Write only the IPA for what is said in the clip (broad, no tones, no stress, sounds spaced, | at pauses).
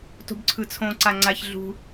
t o̤ b ǀʰ ɯ t͡sʰ õ ǀ a ŋ͡ǀ a ç ɮ ṳ